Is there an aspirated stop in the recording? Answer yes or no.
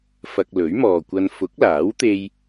no